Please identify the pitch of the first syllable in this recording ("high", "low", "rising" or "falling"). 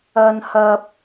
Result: high